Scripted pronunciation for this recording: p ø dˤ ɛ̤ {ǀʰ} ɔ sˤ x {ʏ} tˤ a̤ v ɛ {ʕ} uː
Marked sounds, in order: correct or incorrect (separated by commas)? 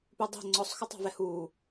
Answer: incorrect, correct, incorrect